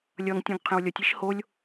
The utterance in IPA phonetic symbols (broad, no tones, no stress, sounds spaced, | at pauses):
lʲ ʌ ŋ tʲ ũ ɡ qʰ ẽ w lʲ ʌ tʲ i ʃ h o lʲ